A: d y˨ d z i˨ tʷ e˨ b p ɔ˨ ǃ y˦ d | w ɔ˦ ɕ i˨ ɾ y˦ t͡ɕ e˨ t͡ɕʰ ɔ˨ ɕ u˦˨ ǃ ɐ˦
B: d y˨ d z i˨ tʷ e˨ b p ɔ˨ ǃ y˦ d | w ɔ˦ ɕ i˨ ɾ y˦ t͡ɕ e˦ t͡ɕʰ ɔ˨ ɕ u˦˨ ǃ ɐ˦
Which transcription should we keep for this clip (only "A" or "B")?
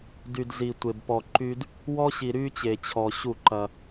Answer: A